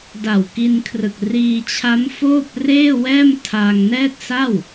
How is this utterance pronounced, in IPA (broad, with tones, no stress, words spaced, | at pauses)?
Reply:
da˨˩wki˧nkʰrɯ˨˩k̚ riː˧t͡ɕʰa˦˥mfoː˥˩p̚ reː˥˩wɛː˥˩m tʰa˧ŋnɛː˥˩t̚sa˥˩w